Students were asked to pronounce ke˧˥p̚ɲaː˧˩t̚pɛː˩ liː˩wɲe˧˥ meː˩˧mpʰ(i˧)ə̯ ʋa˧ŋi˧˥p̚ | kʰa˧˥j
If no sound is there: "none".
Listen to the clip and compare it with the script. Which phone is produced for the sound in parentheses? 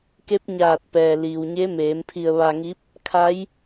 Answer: i˧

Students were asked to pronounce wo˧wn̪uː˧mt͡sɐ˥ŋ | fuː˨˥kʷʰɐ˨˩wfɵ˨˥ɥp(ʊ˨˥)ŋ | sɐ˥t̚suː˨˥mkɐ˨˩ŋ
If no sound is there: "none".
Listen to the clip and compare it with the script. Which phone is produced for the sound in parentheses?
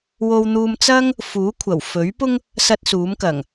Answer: ʊ˥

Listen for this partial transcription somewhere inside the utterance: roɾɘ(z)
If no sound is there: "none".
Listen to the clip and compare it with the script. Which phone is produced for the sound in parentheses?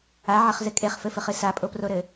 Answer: none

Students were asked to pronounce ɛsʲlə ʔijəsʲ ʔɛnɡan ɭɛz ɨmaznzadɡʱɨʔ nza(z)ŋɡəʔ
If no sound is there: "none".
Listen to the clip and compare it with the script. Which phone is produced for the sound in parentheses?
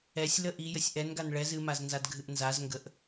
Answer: z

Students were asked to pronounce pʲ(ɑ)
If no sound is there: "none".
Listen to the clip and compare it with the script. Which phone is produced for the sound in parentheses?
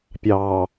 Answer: ɑː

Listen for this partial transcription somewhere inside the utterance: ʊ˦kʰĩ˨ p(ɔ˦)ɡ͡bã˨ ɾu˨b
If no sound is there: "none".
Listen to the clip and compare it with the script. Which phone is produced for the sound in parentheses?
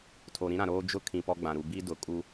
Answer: ɔ˦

